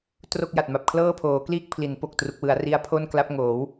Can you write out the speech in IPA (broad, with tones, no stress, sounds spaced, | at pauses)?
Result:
t r o˥˩ k̚ j a˨˩ t̚ m a˨˩ p̚ kʰ l ɤː˥˩ pʰ oː˩˦ k l iː˥˩ k̚ pʰ l i˩˦ n p o˨˩ k̚ t r u˨˩ k̚ w ɯ˩˦ a̯ r i˦˥ a̯ pʰ o˥˩ n k l a˦˥ p̚ ŋ oː˩˦ w